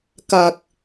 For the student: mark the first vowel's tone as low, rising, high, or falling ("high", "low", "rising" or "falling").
low